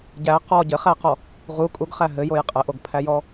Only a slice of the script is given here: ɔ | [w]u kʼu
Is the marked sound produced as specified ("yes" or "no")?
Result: no